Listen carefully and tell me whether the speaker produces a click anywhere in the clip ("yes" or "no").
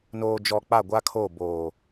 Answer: no